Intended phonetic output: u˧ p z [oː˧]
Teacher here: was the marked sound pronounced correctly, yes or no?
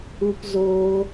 yes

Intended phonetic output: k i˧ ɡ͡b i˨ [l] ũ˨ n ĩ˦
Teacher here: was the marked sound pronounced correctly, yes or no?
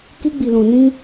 yes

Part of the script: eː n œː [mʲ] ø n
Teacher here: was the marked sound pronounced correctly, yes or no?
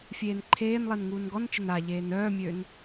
yes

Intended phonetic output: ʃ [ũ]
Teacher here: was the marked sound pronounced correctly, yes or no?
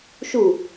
no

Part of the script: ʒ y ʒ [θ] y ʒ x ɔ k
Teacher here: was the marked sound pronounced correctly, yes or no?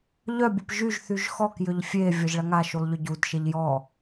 yes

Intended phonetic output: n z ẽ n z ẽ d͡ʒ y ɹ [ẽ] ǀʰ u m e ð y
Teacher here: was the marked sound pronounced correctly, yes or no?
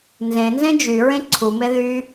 yes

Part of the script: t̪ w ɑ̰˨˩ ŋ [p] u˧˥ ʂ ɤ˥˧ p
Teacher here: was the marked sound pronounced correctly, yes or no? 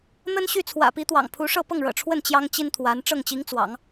no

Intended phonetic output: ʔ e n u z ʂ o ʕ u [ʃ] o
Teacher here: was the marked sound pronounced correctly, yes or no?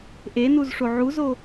no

